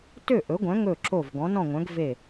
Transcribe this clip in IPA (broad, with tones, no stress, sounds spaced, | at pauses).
t ø˥˩ ʔ ɵ˩˥ ɡʷ œ̃˩˥ ŋ ɵ˥˩ ǁ o˥˩ v ɡ ɔ̃˩˥ n ɔ̃˥˩ ŋʷ œ̃˩˥ ɡ v e˥˩